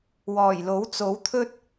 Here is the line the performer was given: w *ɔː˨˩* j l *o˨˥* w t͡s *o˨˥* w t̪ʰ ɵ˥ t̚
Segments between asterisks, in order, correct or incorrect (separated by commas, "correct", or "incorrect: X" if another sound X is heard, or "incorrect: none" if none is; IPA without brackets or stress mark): correct, correct, correct